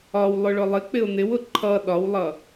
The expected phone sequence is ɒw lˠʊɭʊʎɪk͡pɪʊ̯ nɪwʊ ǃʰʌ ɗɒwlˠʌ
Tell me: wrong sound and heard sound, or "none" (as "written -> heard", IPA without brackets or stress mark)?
ʎ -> lˠ